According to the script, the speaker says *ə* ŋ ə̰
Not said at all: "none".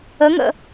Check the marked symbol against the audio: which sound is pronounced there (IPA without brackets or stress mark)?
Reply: ə